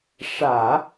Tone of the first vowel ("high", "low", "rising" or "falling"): low